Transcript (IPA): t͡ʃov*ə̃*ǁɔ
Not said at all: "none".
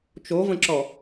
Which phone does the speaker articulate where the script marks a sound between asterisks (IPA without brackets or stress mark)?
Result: ə̃